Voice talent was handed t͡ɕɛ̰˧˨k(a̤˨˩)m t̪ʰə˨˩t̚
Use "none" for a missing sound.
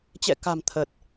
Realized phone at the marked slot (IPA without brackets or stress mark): a̤˨˩